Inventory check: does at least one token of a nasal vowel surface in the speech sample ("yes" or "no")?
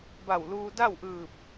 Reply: no